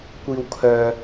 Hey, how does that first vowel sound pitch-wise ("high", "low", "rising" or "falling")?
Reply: low